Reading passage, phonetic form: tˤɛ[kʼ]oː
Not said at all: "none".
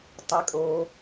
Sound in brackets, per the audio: kʼ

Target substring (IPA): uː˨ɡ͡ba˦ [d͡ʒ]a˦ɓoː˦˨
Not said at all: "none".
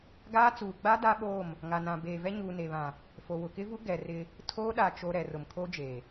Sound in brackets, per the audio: d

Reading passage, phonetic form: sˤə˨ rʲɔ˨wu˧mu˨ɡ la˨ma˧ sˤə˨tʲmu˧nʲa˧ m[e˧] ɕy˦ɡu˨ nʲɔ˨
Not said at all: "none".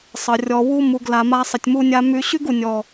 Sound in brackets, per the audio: y˧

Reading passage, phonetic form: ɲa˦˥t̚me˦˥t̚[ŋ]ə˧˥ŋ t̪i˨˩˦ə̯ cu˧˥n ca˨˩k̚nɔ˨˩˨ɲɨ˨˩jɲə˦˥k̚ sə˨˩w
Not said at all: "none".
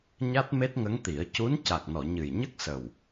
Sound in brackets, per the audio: ŋ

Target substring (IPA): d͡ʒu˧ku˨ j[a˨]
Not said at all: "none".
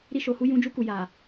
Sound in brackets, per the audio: a˨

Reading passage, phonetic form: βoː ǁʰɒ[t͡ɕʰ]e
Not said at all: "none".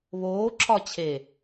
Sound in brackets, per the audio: t͡ɕʰ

